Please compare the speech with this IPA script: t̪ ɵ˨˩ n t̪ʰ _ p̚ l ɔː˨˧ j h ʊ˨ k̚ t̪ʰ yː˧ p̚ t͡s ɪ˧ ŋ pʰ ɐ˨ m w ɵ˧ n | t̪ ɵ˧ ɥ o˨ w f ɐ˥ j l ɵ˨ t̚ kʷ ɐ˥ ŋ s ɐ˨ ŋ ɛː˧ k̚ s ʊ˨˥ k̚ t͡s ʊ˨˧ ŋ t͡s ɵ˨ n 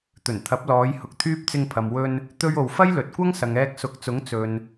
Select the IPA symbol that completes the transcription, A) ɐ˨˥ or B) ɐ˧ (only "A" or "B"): A